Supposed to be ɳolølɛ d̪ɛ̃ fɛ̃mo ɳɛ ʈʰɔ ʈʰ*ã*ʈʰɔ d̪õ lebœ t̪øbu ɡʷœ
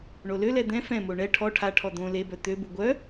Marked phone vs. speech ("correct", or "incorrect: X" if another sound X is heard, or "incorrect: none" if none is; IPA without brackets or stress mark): incorrect: a